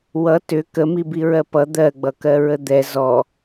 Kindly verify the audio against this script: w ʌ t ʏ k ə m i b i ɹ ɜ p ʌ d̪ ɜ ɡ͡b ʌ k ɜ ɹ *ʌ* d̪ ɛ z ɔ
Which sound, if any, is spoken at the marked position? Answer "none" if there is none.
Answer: ə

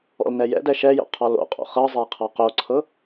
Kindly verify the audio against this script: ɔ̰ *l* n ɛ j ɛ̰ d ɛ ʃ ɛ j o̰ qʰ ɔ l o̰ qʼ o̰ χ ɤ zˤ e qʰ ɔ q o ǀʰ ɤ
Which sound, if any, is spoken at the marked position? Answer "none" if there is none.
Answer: l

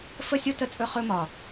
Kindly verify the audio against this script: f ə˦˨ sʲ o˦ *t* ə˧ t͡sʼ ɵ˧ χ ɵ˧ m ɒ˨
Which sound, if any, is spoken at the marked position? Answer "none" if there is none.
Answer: t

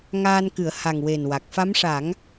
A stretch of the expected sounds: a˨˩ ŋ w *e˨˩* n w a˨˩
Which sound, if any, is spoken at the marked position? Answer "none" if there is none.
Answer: e˨˩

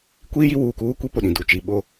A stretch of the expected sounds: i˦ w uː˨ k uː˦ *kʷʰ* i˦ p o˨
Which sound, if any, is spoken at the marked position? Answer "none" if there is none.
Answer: kʷ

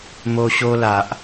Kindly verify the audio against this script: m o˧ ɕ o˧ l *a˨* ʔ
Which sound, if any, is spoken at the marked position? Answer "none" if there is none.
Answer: a˨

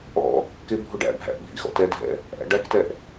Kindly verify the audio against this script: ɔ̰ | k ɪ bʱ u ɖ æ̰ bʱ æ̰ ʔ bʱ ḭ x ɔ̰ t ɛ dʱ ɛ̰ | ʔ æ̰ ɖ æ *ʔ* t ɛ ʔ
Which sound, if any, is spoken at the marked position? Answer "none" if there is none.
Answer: k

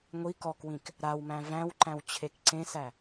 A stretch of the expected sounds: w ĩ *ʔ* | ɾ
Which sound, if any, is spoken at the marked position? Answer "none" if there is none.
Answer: k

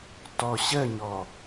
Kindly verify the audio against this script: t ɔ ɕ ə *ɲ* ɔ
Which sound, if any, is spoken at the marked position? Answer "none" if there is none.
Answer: ɲ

